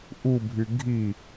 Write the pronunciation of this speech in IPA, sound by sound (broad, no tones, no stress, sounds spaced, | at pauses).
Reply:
ʔ u bʱ y ɡʱ i